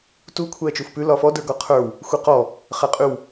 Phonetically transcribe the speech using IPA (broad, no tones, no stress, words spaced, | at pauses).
tu kʷʰɛːt͡ʃufpʉ lɒfɔ də˞ɡɒqʰə˞w | xʷɛqɔ | χɛqʼʉw